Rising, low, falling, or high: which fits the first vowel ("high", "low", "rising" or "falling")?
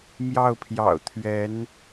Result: falling